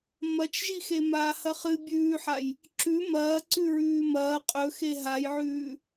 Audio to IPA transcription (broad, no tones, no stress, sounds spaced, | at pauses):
m ɐ t͡ʃ ʒ i x e m aː h ɐ χ ɨ bʲ ʉː ħ a j | ǁ ʉ m ɐː ǀ ʉ ɹ ʉː m ɐː qʼ ɵ x e ɦ a j ʕ ʉː